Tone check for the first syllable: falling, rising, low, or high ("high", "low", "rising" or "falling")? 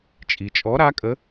low